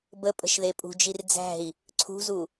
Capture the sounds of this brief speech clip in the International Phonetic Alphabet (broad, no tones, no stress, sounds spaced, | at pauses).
b ə pʼ ə̤ ʃ ð e pʼ ṳ d͡ʒ i r d͡z æ̤ i̯ | ǀʰ ṳ z u